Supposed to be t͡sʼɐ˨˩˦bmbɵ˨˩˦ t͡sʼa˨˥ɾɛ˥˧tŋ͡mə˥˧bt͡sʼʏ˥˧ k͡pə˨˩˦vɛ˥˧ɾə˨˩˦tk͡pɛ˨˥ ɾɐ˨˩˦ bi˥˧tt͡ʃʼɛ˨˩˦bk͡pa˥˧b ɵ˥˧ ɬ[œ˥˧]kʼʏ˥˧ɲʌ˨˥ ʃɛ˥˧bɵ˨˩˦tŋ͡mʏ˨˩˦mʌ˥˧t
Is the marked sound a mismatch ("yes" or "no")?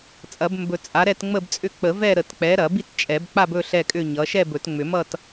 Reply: yes